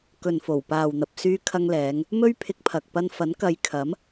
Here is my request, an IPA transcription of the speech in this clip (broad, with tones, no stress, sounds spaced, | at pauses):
k ɵ˨ n f o˨˩ w p aː˨ w n̪ ɐ˨ p̚ s yː˧ kʰ ɐ˧ ŋ l ɛː˨˧ ŋ | m ɵ˥ ɥ pʰ ɪ˧ k̚ pʰ ɐ˨ k̚ p ɐ˧ n f ɐ˨˥ n k ɐ˨˧ j kʰ ɐ˨˥ m